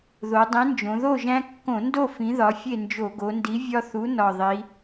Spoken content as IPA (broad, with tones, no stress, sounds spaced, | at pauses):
ð o˩˧ dˤ ĩ˨˥ n d͡ʒ õ˩˧ ð o˥˨ ʒ æ̃˦ kː õ˧˩˧ n d o˥˨ f ĩ˨˥ ð ɒ˨˥ fʲ e˥˨ n d͡ʒ o˧˩˧ ɡ o˩˧ n d i˨˥ vʲ ɒ˦ θ u˨˥ n ɒ˨˩ ðˤ i˩˧